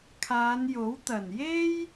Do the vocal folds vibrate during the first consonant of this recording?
no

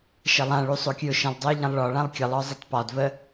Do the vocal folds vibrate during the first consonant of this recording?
no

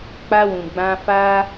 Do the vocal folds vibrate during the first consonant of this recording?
no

